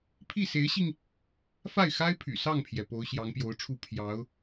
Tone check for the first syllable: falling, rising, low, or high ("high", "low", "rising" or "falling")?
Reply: falling